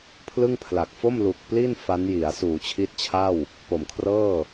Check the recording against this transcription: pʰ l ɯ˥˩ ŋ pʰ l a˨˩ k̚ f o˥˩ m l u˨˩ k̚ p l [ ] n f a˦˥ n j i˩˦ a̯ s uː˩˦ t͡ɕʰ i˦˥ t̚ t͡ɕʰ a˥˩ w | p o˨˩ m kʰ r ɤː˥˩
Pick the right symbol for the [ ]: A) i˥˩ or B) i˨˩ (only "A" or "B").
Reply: A